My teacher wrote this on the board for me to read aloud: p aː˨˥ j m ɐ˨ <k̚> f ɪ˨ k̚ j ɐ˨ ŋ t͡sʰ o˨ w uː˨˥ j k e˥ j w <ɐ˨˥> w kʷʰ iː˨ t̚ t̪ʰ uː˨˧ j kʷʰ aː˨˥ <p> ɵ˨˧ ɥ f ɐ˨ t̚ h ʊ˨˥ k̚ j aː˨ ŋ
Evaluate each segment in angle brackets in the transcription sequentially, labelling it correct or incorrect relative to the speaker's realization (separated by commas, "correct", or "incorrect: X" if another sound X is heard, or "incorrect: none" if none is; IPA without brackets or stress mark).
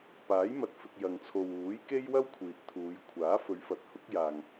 incorrect: t̚, incorrect: ɐ˥, incorrect: f